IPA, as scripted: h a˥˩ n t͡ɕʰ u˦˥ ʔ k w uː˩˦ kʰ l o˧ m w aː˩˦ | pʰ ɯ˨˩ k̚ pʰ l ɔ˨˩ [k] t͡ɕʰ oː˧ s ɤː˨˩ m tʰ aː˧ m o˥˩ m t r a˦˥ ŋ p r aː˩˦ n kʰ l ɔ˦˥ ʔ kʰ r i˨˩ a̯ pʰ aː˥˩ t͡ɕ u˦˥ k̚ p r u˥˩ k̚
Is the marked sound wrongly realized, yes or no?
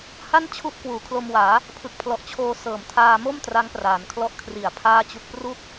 yes